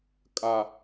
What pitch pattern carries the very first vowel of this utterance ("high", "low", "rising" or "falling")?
low